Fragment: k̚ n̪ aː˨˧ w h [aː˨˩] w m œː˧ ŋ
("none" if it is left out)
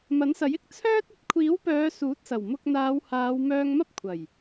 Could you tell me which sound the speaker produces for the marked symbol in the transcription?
aː˨˧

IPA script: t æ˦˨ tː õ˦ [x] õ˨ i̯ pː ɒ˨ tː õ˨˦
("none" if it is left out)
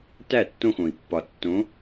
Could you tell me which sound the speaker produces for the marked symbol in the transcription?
x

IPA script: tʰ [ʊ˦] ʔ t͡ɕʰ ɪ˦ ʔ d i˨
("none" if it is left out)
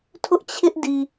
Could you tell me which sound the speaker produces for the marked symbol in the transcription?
ʊ˦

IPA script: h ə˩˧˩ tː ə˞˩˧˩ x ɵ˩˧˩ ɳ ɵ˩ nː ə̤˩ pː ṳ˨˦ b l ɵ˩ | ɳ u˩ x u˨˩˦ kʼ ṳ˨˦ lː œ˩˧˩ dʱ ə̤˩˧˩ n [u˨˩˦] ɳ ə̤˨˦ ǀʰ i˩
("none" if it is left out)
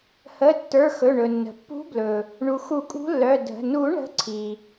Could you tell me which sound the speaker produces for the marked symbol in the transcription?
u˨˩˦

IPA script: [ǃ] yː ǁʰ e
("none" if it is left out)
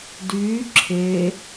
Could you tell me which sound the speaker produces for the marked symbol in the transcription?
d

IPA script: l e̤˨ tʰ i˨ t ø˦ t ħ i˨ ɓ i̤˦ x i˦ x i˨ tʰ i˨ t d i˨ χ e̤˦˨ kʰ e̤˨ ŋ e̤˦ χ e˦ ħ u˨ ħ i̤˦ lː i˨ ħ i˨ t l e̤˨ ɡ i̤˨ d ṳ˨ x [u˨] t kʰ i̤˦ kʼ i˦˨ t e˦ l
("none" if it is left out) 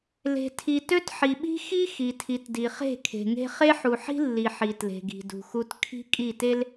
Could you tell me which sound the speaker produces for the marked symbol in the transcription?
u˦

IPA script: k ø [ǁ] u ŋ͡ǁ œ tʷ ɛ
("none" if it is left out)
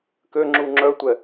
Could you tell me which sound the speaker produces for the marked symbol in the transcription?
ŋ͡ǁ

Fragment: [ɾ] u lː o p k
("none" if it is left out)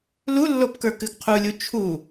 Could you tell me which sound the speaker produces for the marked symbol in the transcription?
l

